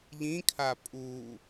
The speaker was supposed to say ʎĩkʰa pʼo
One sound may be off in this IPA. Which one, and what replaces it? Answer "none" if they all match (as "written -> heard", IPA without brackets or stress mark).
o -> u